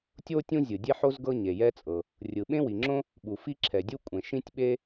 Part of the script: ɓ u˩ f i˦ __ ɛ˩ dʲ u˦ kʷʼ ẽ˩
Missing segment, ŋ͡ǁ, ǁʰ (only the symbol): ǁʰ